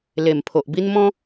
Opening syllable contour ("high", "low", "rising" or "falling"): low